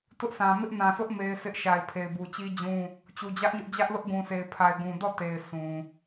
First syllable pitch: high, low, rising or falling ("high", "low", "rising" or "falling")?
high